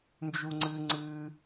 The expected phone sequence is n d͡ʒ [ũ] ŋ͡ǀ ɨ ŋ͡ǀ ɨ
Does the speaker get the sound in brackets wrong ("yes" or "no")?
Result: yes